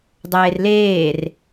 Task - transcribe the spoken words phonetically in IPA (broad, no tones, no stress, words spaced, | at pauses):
dˤeːrleːr